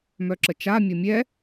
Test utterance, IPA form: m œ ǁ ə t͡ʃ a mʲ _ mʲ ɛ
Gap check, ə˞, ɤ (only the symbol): ɤ